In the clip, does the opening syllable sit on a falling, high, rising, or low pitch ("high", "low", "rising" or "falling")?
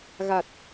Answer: low